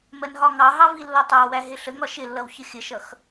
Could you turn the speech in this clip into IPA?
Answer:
m ɜ n ɦ ɒ ŋ ɑ ɦ ɑ v i lː ɒ tˤ ɑ w æ ɦ ɪ ɬ ə ŋ ɒ ʃ ɪ lː ʌ w ç ə xʲ ə ʃ ʌ x

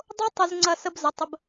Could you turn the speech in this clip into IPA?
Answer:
dˤ o˥ tˤ ʊ˧ z ŋ͡ǀ ɐ˥˧ s ə˥ b z ə˩˧ tˤ ə˧ b

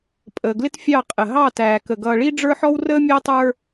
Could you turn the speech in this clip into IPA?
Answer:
pʼ əː˨ ɡ l ɪ˦ t fʲ ɑ˦˨ qʼ ə˨ ɦ ɑ˦˨ t æː˨ k ə˨ ɡ ʌː˨ ɭ i˦ ɖ͡ʐ ə˞˦ ħ ɔ˦ w r əː˦ mʲ æ˦ tˤ ə˞˦

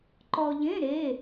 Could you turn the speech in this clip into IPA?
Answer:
ǃ ɔ˧ ʎ ẽ˧˥˧ ɾ e˧˥˧

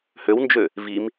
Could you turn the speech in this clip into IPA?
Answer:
h ø w n d͡ʒ ø | v i m

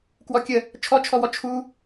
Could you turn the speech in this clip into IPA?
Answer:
k w ɔ kʲ ə | t͡ʃʰ ɔ t͡ʃʰ ɔ w ɔ t͡ʃʰ u

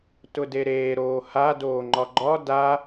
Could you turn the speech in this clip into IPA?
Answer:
t ʊ d e ɾ eː ɾ oː h a d oː ŋ͡ǃ ɒ ɡ͡ǃ ɒ d a

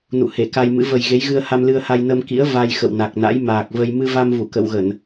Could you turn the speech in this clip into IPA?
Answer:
n ṵ˧˨ h e˧˩ k a˧ j m ɨ̰˧˥ v ə˨˩ j ɣ e˨˦ j ɣ ɨ˧ ə̯ h a˧ m l ɨ˧ ə̯ h a˧ j n ə˧ m k ḭ˧˥ ə̯ v a˧ j x ə̰˧˨ w n a˨˩ k̚ n a̰˧˥ j m aː˨˩ k̚ v ə˧ j m ɨ˧ v a˧ m v u˧˩ k ə̰˧˨ w ɣ ə˧˩˨ n

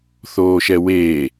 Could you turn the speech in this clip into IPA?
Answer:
θ oː ʃ ɛ w eː

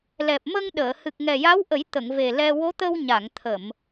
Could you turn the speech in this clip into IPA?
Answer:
l ɛ˨˩ p̚ m ə˧ ŋ ɗ əː˨˩˨ h ɨ˨˩ k̚ ŋ ɛ˨˩ j a˧˥ w ʔ ə˨˩˦ j t̪ ə˨˩˨ ŋ v e˨˩ l ɛ˧ w o˧˥ t̪ ə˧ w ɲ a˨˩˨ ŋ t̪ʰ ə˨˩˨ m

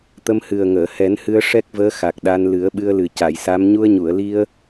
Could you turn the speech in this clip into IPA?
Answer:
t̪ ə˧ m h ɨ˨˩ ə̯ ŋ əː˨˩˨ h ɛ˨˩˦ n h ɨ˧ ə̯ ʂ ɛ˦˥ k̚ v əː˧˥ x a˨˩ k̚ ɗ a˧ n l ɨ˨˩˦ ə̯ ɓ ɨ˧ ə̯ l ɨ˨˩ c a˨˩˨ j s a˧˥ m ɲ u˧ ə̯ ɲ u˨˩˨ ə̯ l i˧ ə̯

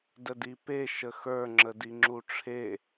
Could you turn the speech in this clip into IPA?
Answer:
d ə d i p e ʃ ə x ə˞ ŋ͡ǁ ə d i ŋ͡ǁ u ʈ͡ʂʰ e

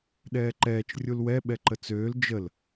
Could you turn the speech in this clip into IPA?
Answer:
ɗ ɛː ǃ ɛː t͡ʃ rʲ u l w ɛ ɓ ɛ ǃ ə t͡s øː l d͡ʒ ə l

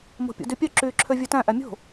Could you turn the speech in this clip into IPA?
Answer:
m o̤ pʲ ṵ d y pʲ œ ǁ yː ǁʰ ø vʲ ʉ t æ̃ ʔ æ mʲ o̤

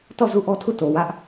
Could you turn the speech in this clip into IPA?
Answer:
t ɔ˦˨ z u˦˨ ʔ ɔ˦ tʰ u˦˨ t o˨ w ä˦ ʔ

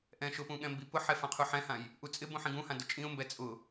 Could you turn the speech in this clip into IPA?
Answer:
ʔ ɛ̃ ʃ ʊ p ũ ɠ ɛ̃ m b i p ʊ ħ ɛ f ã qʰ u ħ ɛ̃ h ã j | ʔ u t͡sʼ ɪ b ũ ħ ĩ ɡ ũ h ã d ʊ t͡ʃʼ ĩ ʊ̯ m b ɛ t͡sʼ ʊ

